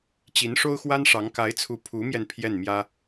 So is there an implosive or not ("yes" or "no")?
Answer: no